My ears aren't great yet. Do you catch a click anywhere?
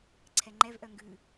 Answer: yes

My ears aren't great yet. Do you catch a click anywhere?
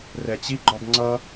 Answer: yes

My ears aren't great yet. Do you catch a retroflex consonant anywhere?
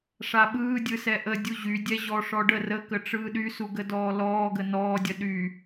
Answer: yes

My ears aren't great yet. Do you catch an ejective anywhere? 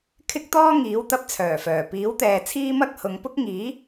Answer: no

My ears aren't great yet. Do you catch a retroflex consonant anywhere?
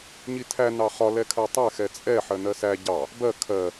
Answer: no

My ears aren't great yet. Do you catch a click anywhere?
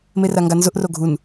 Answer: no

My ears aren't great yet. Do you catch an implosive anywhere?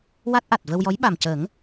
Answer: yes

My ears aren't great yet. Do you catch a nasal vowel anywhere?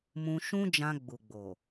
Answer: yes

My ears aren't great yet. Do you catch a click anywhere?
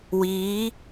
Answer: no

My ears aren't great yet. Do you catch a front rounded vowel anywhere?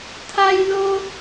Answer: no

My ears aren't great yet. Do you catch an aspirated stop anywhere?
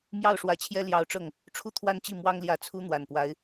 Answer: yes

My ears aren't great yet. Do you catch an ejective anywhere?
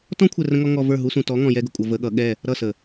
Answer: yes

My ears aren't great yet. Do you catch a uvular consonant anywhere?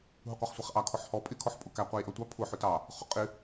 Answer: yes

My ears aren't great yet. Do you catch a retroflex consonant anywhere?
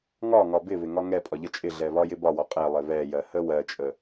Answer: no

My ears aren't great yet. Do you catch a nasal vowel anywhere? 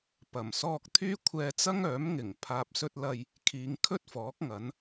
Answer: no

